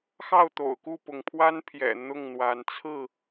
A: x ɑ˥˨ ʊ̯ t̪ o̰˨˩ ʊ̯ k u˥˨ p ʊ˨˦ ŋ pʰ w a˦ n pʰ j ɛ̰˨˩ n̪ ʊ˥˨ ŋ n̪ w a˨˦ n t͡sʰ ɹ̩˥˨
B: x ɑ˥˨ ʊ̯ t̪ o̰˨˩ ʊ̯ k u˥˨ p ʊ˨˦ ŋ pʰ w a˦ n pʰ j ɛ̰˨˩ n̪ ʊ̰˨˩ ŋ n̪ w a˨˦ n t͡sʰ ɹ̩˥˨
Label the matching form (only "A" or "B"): A